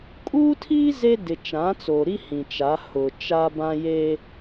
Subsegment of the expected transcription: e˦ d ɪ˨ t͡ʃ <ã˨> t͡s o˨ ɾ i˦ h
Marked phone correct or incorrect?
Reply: incorrect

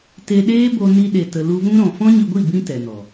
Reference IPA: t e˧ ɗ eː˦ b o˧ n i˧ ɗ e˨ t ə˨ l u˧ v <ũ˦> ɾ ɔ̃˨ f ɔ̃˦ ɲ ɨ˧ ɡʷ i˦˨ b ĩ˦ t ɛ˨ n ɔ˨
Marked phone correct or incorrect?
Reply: correct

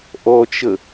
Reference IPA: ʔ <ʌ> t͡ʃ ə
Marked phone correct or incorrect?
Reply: incorrect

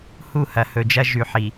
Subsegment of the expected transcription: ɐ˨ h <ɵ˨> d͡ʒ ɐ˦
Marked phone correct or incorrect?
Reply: correct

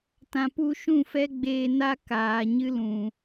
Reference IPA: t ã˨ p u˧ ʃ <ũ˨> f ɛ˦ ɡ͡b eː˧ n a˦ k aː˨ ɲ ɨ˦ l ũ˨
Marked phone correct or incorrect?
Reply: incorrect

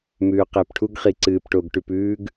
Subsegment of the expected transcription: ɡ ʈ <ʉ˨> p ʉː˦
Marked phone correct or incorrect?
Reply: correct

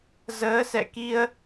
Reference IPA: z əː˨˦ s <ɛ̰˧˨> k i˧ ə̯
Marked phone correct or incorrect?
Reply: correct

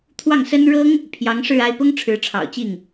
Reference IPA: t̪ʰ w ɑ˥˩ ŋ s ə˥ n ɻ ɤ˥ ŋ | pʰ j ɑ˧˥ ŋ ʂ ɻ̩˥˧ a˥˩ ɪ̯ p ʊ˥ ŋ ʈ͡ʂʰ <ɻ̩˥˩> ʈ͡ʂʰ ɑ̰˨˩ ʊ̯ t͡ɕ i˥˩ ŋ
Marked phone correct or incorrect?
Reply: incorrect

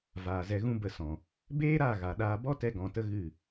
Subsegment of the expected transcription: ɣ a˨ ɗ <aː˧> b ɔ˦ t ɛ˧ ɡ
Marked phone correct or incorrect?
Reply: correct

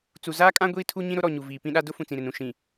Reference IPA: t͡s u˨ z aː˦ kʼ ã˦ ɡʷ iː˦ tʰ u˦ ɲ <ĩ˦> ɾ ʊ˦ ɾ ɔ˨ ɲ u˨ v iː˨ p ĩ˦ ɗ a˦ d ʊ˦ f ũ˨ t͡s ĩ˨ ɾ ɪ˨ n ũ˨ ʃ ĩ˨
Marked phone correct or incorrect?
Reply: correct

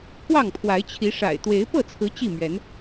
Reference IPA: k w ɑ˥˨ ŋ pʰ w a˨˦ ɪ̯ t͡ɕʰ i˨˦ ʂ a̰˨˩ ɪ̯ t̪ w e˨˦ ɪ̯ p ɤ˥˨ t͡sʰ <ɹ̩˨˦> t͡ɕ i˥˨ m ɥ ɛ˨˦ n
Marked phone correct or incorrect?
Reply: correct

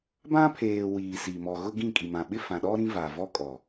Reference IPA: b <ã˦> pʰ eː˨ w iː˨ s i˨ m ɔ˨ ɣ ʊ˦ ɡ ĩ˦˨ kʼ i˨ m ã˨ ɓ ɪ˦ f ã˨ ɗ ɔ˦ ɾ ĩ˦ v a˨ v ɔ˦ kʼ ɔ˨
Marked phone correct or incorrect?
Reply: correct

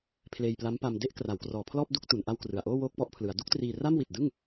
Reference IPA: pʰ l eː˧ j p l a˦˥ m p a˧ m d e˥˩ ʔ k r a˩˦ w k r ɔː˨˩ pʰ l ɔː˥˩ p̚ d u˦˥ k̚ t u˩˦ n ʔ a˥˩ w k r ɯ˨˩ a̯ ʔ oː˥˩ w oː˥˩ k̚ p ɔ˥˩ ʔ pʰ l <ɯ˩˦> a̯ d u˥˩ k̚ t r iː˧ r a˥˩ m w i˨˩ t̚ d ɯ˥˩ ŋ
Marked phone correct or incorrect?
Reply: correct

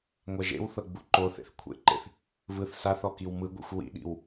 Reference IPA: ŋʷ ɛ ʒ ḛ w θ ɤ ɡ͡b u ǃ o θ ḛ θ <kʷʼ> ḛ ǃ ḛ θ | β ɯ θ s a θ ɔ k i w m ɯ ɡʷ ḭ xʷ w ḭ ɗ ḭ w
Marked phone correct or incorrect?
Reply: incorrect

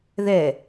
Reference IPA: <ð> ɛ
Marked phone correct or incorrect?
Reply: correct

